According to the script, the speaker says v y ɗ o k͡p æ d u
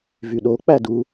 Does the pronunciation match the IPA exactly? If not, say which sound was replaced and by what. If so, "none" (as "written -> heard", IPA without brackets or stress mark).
none